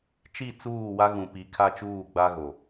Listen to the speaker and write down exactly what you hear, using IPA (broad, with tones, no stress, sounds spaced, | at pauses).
t͡ʃ i˦˨ t͡s uː˦˨ w a˦ ɣ ũ˨ p i˨˦ kʰ a˦ t͡ʃ uː˦˨ ɡ͡b a˦ ɣ o˨